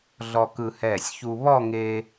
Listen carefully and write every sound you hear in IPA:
ɮ ɔ˧ k ɯ˧ h ɛː˧˩ sʲ ç u˧ β ɔ˥˧ ŋ e˧

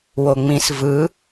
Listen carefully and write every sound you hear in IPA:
w o ŋ͡m ĩ s v ɯ

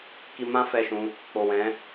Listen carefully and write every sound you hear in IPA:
k i˧ m ã˦ f ɛ˦˨ ʃ ũ˧ | k͡p o˨ w ɛ̃˨˦

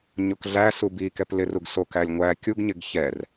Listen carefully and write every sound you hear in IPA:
ɲ o k ɮ æ s u b i k ɛ p l ɪ r u ɡ s o k æ lʲ ŋʷ æ kʲ u ɡ ɲ ɪ ɡ ç ɛ r

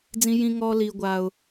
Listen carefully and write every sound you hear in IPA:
d͡z ĩ˥ j ĩ˥ ŋ ɔː˥ l iː˥ ɡʷ aː˥ ʊ̯

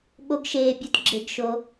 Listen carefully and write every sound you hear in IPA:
ɓ o˦ ɡ ʃ eː˦ bʲ o˦ t ɡ͡ǁ e˦ ɡ ʃ o˦

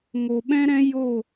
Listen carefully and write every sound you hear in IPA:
ŋ o˨ ɓ ɛ̃˦ ɾ ɛ̃˦ j o˦˨

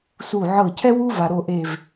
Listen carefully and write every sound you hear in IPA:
s u˧˩ ʕ ɤ˧˩ cʰ ɛ˥ w u˥ v a˩ ɾ o˧˩ ʔ e˧˩ v

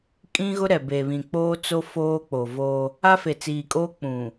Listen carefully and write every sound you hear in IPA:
kʼ ĩ˦ ɣ ʊ˦ ɾ ɛ˨ b e˨ β ĩ˨ k͡p oː˦ t͡s o˦ f oː˦ k͡p o˨ v o˦ | a˦ f e˨ t͡s iː˨ kʼ oː˦ k͡p ũ˨

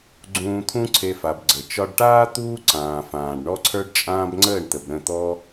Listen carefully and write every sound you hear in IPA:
ɡ͡ǀ ũː˨ t̪ʰ ũ˧ ǀʰ e˧ f a˨ b ɡ͡ǀ ə˨ t͡ʃ ɒ˧ ɖ ʈ aː˦ t̪ uː˦ ǀ ãː˨ f ãː˨ ɖ ɳ ɔ˦ ǀʰ ə˞˦ ɖ t͡ʃʼ ãː˦ b ŋ͡ǀ əː˦˨ ɳ t̪ ə˨ b ɾ ə̃˦˨ t̪ ɔ˦

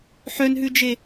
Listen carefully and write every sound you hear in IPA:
ħ œ n ɦ ʉ d͡ʒ e

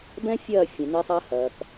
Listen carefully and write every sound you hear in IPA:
b ɛ̃˦ fʲ ɐː˦˨ fʲ ẽ˨ n e˦ sˤ ɐː˦ h ɐː˨ k

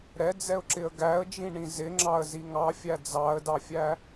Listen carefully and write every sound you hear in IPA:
ɾ ɛ d͡z ɛ ʊ̯ ǁ ɪ ə̯ ɡ æ ə̯ d͡ʒ ĩ ɳ ĩ z ɪ ŋ͡ǁ ɑ ə̯ z i ŋ ɑ fʲ æ d͡z ɑ ə̯ d ɑ fʲ æ

